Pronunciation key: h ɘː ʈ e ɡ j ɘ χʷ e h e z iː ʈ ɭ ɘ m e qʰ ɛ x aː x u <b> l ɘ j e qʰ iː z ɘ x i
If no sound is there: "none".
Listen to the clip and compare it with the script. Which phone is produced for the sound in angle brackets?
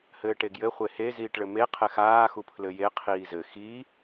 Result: pʰ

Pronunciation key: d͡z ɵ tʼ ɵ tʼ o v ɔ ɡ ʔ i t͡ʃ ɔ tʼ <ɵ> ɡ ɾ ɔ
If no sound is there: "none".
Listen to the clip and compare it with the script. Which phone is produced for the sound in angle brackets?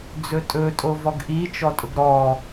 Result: ʊ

